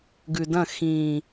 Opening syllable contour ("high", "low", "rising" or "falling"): low